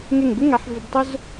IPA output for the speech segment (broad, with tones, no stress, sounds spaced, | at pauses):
ŋ e˧˩ ŋ b ɪ˥ ŋ a˩˧ ħ v ɪ˧ b tˤ ʊ˥ z